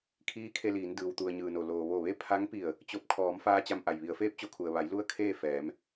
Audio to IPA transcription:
kʰ iː˧˥ kʰ e˧ l iː˩˧ n d ɯː˩ w t̪ u˩ ə̯ ɲ ɯː˩ n o˩ l oː˩ ʋ o˧˩ ʋ e˥˨ pʰ a˧˥ ŋ p i˧˩ ə̯ | t͡ɕ o˧˩ p̚ kʰ ɔː˩˧ m f aː˧ t͡ɕ a˧ m ʔ a˩ j ʋ i˩˧ ə̯ f eː˧˥ p̚ t͡ɕ o˩˧ kʰ u˩ ə̯ ʋ a˩˧ j l u˥˨ ə̯ kʰ eː˥˨ f ɛː˩˧ m

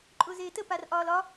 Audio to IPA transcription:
ǃʼ ʊː z eː t ə p a r ʔ ɒː l ɒ

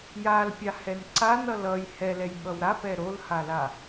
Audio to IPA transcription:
j a l pʲ a h ɛ n ǀ a n ʌ l ʌ j h ɛ l ɛ j ɓ ʌ w ɾ a p ɛ ɾ o l h a l a

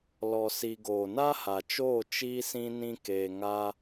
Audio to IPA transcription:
l ɔ˧ s i˧ ɡ oː˨ n a˦ h a˨ t͡ʃ oː˦˨ t͡ʃ iː˦ s ĩ˦ n ĩ˦ k eː˧ ŋ a˦

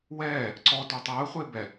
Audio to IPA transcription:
w ɛː | ǀ ɔ t ø tˤ əː χʷ e b ɛ

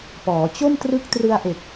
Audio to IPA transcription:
p ɔː˩˦ t͡ɕ o˥˩ m t r ɯ˦˥ k̚ t r ɯ˧ a̯ ʔ e˨˩ k̚

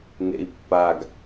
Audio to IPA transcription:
n ḛ i̯ pː a ɡ

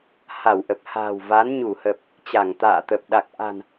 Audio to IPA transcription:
h a˧˩ w ʔ ə˨˩ p̚ h a̤ː˨˩ w v a˨˦ n ɲ u˧˩ h ə˨˩ p̚ | t͡ɕ a˧˩ ŋ t̪ a̰ː˧˨ t̪ ə˨˩ p̚ ɗ a˨˩ k̚ ʔ a̤˨˩ n

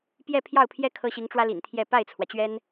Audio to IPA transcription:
p j ɛ˥˧ pʰ j ɑ˥˩ ʊ̯ pʰ j ɛ˥ kʰ ɤ˥ ɕ i˧˥ ŋ ʈ͡ʂ w ä˥ l ḭ˨˩ n t̪ʰ j ɛ˥˧ p a˥˩ ɪ̯ t͡sʰ w ä˩ t͡ɕ ɥ ɛ˥ n

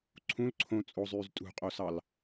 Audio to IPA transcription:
ǀʰ ũ l ǀʰ õ t͡sʼ o zˤ yː z tʼ ṳ qʼ o s ɑ l

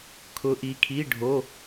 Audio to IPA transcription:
kʰ ʊ˨˦ ʔ i˨˦ kʰ i˧˥˧ ɖʱ o˧˥˧

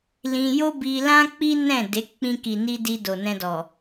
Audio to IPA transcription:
l ĩ˧ j o˦ b i˧ l ã˦ k͡p i˦ n ɛ̃˦˨ d e˨˦ k͡p ĩ˧ k i˨ n i˧ d i˧ d o˨ n ɛ̃˧ d ɔ˨

